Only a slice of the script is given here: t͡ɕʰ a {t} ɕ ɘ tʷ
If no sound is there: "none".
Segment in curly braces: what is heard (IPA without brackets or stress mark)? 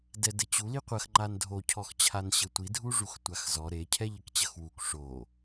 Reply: n